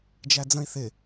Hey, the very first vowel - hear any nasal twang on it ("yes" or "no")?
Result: no